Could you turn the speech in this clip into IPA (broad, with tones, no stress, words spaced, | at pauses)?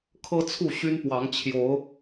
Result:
kʰɤ˦t͡sʰu˥˨ ɕy˦npwɑ˨˦ŋ t͡ɕʰjo˨˦ʊ̯